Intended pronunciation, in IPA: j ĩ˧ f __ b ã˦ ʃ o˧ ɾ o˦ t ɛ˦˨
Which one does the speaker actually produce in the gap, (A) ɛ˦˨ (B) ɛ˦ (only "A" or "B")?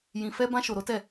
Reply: B